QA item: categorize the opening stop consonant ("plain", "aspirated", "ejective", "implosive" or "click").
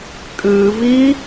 ejective